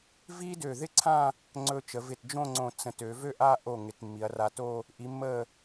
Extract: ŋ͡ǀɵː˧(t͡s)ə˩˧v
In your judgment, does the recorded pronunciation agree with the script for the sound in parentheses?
no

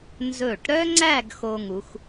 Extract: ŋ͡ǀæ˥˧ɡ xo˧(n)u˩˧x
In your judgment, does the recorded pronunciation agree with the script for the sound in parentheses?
no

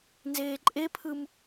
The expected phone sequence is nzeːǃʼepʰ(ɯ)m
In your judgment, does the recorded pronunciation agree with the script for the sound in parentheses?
yes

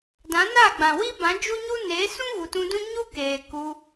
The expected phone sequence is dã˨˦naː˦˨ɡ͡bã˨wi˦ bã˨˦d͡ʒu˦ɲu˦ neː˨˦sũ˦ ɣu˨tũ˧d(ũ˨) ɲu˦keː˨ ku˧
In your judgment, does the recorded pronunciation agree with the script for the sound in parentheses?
no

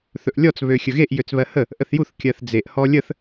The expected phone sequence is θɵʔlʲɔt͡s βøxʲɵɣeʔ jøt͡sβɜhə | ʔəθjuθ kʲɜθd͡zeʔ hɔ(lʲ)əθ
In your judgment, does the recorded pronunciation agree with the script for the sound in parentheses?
yes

